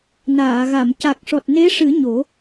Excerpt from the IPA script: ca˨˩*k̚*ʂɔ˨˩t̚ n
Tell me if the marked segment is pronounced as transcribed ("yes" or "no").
yes